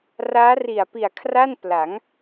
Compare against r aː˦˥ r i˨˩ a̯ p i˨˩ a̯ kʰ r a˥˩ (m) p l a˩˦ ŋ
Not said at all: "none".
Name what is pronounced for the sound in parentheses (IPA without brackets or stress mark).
n